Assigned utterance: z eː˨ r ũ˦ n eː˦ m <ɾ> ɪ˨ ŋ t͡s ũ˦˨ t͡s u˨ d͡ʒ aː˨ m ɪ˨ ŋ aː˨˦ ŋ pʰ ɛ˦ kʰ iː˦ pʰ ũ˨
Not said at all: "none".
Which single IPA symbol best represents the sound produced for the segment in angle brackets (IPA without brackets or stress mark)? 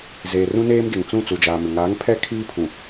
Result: d